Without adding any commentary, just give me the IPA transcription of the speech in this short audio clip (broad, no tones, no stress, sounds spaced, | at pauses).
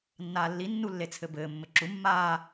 nː aː lː i nː u lː e t͡sʰ ɘ b ɘː mː ɘ ǁ u mː aː